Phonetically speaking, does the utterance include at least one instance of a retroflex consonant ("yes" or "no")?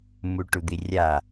yes